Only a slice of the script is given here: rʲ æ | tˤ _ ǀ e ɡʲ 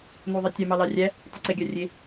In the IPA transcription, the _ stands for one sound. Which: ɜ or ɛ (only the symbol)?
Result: ɛ